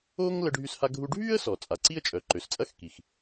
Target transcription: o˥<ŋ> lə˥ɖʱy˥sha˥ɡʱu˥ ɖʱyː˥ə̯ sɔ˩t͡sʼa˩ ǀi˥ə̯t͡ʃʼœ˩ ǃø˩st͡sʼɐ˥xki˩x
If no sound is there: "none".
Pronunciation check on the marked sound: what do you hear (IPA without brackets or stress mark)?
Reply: ŋ